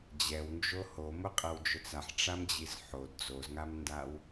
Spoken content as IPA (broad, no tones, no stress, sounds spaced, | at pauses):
d͡ʑ ɛ w n d͡ʒ o h o m ʊ qʼ ɛ w d͡ʒ ʊ t͡s a ħ ʈ͡ʂ a m d͡ʑ i z ħ o d d͡z o z ŋ a m n d a w